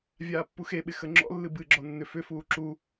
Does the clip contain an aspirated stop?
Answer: no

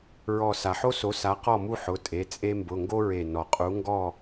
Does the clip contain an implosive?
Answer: no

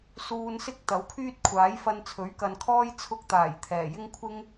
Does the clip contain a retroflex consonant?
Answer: no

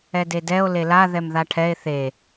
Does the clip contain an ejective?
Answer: no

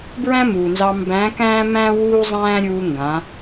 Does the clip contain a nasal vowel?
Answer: yes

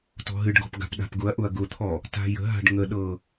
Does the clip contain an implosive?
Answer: yes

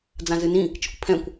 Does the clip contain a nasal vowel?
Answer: yes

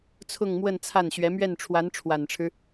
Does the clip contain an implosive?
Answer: no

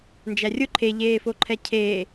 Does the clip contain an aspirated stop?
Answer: yes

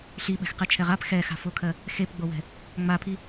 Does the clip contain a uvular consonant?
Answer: yes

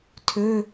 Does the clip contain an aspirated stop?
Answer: yes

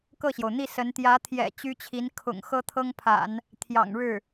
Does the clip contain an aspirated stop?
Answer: yes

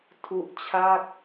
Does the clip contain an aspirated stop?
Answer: yes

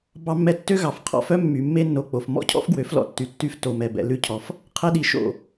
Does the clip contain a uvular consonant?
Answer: yes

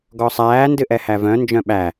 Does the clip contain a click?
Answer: no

